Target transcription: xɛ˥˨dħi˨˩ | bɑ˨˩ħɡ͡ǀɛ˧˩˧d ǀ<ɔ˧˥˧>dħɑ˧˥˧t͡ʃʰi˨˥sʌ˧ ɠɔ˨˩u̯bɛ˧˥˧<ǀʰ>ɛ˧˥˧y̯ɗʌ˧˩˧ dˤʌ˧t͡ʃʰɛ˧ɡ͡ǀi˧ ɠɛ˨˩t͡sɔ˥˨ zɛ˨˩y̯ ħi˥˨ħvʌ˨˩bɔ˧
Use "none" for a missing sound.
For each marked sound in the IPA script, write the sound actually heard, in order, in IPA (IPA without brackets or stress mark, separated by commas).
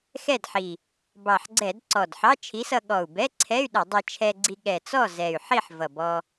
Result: ɔ˨˩, ǀʰ